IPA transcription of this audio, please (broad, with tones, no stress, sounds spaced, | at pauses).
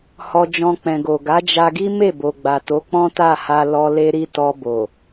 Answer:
h ɔ˧ d͡ʒ ɔ̃˧ k͡p ɛ̃˨ ɡ o˨ ɡ a˨˦ d͡ʒ a˧ ɡ i˦ m e˦˨ b o˨ ɡ͡b a˨ t o˨˦ k͡p ɔ̃˦ t a˦˨ h a˧ l ɔ˧ l e˧ ɾ i˧ t ɔ˧ b o˨